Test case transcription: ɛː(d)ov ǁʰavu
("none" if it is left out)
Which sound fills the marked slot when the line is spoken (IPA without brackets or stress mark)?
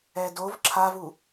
d